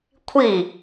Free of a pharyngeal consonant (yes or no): yes